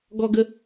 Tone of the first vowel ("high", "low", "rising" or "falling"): high